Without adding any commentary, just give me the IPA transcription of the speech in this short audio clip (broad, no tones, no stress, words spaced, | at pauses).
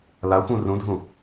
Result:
laxʷũ rũdʱũ